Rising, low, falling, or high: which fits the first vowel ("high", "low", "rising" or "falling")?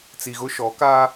low